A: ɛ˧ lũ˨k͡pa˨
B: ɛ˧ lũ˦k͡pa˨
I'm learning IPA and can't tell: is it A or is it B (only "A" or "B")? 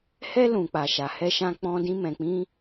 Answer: A